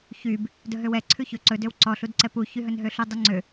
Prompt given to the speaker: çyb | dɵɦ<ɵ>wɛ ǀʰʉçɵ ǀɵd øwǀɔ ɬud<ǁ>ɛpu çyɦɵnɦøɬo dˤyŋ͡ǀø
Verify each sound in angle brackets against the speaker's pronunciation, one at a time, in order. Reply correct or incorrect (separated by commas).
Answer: incorrect, incorrect